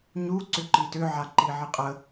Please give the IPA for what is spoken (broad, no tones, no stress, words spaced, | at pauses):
ɲu ǀʏǃitʏ ʕaǃiʕiqʼə